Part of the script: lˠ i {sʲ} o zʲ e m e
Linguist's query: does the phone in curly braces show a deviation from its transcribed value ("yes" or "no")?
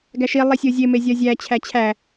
no